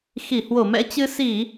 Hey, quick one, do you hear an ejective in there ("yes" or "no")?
no